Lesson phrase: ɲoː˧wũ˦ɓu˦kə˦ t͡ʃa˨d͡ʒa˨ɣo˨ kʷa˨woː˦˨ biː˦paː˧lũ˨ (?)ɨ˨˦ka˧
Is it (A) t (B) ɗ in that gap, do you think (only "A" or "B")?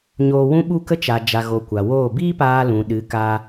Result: B